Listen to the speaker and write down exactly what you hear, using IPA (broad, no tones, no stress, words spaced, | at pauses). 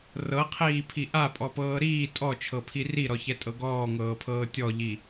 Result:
rɤqʰiːpʰi ʔapʼɔpɤː ɾiː tʼɔt͡ʃʰɤpʰi riɾɔçɛtʼɤ ɡɔːŋɤːpʰɤː tʲɔʎi